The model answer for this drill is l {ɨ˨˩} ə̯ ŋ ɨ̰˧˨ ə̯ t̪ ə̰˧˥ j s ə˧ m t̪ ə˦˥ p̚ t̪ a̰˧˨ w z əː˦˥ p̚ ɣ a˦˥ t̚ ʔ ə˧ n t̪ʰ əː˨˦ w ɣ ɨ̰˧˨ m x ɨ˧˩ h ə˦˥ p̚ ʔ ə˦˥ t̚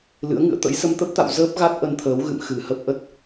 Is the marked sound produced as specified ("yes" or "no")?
no